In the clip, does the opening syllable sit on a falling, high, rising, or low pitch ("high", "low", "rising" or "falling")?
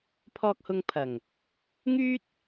low